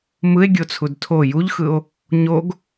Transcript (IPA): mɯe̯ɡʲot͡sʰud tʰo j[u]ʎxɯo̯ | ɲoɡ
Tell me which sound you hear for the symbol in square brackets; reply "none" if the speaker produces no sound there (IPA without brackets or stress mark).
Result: u